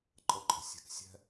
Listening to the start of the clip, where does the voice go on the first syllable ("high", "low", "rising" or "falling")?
rising